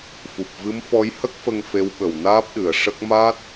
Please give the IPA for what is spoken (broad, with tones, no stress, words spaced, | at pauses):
fu˨˩p̚vɨ˧˥m fɔ˧˥jhə˦˥k̚fə˧ŋ fe˧˥wɓə˨˩wnaː˦˥p̚ɗɨ˨˩˨ə̯ ʂə˦˥k̚ ma˦˥t̚